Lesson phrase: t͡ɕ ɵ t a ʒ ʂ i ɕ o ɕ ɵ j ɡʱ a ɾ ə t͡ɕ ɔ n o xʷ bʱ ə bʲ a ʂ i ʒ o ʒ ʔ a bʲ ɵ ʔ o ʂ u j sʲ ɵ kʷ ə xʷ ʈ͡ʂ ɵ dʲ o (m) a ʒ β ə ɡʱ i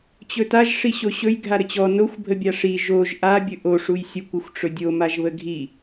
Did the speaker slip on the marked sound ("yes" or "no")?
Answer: no